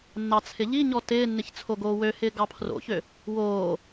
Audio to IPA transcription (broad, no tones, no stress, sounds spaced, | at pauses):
nː ɑ t͡sʰ ɪ ʎ i ɲ ɔ t ɪː nː ɪ ç t͡sʰ o ɡ oː w ø h ɪː ɡ ɑ pʰ r o̰ ç ø | w oː